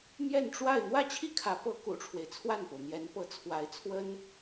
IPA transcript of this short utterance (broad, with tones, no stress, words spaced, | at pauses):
mjɛ˥˧nʈ͡ʂwa˥˧ɪ̯ n̪wä˥˧t͡ɕʰi˥˩kʰä˧˥pɤ˧˥ kṵ˨˩ʈ͡ʂʰwe˦ɪ̯t͡sʰwa˥˩npo˩ʊ̯ n̪jɛ˧˥npɤ˧˥t͡sʰwa˧˥ɪ̯t͡sʰwə˥n